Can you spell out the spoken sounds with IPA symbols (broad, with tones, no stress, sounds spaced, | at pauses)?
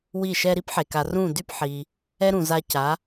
w i˥˩ ʃ ɛ˥ ɾ i˥ p ħ e˩ k a˩ r ũ˥˩ d y˥ p ħ i˩ | ɛ˥ ɾ ũ˩ z a˧ c a˩˥